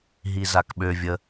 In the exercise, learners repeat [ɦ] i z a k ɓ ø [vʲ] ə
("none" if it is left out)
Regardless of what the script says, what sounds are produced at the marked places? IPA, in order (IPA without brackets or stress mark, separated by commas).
ɦ, vʲ